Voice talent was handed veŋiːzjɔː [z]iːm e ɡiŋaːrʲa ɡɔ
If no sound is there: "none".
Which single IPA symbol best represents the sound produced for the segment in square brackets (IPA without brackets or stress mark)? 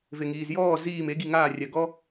z